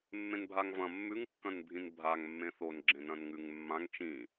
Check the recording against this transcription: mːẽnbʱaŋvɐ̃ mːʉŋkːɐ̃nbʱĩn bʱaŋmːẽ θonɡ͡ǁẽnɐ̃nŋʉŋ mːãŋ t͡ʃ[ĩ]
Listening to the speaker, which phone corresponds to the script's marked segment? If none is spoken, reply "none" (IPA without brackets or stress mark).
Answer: ĩ